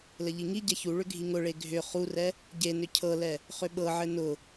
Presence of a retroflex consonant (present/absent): present